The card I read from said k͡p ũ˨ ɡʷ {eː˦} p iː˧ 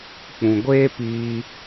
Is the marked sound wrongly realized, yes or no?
no